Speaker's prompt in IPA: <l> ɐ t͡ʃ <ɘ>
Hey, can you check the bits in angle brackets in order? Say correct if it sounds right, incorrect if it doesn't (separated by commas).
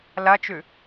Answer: correct, incorrect